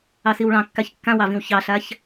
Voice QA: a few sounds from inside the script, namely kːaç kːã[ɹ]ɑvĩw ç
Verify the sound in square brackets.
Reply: incorrect: w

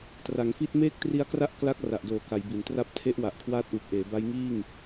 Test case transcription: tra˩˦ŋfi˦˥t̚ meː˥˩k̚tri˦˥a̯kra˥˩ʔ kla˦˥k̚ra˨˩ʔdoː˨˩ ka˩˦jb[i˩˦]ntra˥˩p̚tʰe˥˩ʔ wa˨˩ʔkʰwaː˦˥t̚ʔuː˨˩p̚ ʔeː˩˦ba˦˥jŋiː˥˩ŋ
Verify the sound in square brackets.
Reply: correct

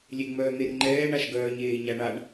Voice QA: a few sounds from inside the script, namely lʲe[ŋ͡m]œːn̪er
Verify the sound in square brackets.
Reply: correct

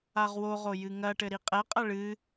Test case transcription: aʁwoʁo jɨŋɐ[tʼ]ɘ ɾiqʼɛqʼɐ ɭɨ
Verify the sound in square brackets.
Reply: incorrect: ʈ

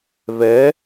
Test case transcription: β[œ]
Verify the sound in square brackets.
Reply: incorrect: ɛ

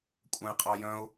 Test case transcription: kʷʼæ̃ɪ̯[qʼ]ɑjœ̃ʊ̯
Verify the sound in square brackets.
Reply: correct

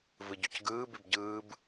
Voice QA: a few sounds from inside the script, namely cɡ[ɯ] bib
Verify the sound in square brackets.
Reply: incorrect: ɯː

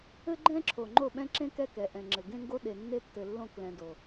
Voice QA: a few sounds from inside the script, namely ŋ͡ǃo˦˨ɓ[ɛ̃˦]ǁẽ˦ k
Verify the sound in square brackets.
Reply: correct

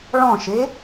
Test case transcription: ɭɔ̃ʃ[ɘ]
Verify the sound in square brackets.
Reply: incorrect: e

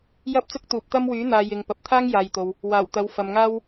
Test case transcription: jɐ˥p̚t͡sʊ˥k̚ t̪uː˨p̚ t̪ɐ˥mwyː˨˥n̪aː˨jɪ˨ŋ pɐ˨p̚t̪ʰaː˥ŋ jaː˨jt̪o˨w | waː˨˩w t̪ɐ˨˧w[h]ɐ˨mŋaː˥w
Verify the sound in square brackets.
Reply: incorrect: f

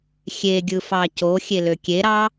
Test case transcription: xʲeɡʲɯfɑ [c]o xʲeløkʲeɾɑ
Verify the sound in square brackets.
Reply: correct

